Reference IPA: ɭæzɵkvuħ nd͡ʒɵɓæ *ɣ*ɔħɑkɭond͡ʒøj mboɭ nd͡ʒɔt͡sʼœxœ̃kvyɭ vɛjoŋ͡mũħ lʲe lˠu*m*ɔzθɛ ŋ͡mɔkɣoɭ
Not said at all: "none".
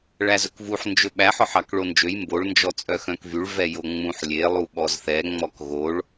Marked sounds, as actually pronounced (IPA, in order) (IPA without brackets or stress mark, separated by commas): ħ, ɓ